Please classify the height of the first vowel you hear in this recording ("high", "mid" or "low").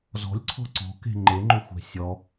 mid